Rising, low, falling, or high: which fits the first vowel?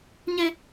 high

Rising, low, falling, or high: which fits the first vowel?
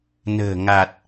low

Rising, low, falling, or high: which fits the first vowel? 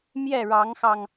falling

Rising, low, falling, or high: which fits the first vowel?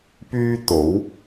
high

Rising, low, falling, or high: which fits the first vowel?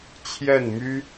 falling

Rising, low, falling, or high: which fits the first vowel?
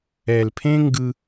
low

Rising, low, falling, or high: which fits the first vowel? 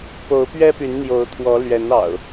rising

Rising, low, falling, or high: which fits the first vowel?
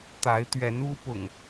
rising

